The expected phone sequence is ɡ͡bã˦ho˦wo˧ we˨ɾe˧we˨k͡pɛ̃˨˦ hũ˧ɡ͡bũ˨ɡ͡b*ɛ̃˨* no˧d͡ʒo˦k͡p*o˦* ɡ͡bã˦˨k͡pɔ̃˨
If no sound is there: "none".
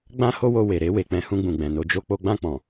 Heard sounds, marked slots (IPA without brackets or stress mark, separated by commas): ɛ̃˨, o˦